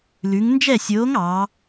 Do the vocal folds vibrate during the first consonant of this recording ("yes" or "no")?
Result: yes